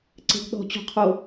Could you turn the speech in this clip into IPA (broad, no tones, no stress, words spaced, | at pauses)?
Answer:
ǀe̤ɡɗɔ̤ t͡ɕo̤qʰo